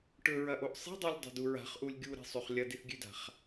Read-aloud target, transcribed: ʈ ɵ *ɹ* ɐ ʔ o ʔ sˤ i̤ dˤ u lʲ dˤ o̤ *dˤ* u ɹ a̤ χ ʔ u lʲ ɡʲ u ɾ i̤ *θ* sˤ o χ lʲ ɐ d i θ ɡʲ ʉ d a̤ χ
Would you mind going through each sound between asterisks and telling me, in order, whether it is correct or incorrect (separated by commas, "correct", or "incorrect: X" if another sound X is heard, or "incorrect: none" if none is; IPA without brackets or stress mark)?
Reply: correct, incorrect: d, incorrect: none